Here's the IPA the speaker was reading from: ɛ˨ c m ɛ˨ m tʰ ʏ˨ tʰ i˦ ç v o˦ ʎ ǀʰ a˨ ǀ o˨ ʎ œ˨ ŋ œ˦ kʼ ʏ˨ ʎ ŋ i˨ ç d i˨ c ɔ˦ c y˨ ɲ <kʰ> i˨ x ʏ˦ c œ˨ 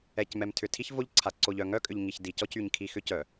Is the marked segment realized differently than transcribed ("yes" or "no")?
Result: no